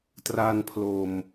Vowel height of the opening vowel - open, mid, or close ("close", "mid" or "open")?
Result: open